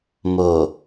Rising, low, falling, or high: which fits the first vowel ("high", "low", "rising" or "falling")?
low